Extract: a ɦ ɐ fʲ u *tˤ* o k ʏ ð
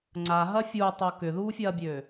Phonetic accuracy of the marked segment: correct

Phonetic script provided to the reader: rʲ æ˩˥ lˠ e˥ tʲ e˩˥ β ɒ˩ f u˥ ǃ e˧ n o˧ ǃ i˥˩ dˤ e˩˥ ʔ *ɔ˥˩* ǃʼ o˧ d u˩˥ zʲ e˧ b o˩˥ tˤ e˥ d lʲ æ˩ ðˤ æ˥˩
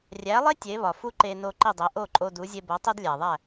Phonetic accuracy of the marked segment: incorrect: o˥˩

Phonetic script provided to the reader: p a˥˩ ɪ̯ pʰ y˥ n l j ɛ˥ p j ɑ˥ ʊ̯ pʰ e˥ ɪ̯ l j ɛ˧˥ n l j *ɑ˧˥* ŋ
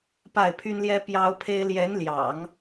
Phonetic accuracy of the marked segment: incorrect: ɑ̰˨˩˦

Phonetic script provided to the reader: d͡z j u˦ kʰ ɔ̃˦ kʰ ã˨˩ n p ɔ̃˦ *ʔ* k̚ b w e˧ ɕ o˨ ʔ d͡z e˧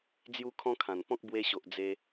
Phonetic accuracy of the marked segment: incorrect: none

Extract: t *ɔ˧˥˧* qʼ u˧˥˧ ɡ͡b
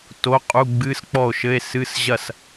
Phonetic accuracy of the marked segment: incorrect: o˧˥˧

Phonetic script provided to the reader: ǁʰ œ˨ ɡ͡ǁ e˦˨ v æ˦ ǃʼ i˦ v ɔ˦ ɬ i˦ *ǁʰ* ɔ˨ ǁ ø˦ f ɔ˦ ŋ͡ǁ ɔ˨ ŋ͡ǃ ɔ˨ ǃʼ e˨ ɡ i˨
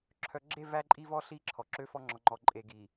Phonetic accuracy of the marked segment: correct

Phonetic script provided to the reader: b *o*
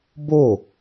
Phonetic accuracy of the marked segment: correct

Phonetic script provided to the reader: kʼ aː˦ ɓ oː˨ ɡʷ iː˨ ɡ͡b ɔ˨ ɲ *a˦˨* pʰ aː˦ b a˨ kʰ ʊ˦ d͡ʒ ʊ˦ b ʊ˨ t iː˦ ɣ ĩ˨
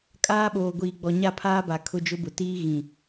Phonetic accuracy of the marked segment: correct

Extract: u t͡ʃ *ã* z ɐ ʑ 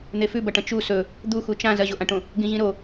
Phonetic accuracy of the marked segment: correct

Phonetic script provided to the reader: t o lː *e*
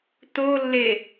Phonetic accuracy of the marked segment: correct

